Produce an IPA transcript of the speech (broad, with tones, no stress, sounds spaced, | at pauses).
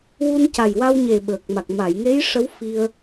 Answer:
w u˧ n c a˨˩ j w a˧ w ɲ e˨˩ ɓ əː˨˩ k̚ m a˨˩ k̚ m a˨˩˨ j ŋ e˧˥ j ʂ ə˧˥ w f i˧ ə̯